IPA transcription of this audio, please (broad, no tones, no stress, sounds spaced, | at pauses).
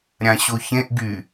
ɾʲ ã ɕ o ç ẽ ʔ ɡ y